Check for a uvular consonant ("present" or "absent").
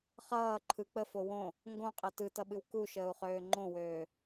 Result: present